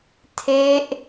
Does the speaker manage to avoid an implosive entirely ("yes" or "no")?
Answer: yes